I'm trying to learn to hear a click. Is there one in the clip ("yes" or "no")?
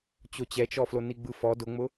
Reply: no